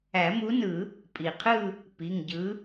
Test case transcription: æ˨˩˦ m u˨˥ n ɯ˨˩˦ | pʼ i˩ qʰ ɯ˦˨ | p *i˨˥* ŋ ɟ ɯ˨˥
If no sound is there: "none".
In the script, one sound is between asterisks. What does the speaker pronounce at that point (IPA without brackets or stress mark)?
i˩˧˩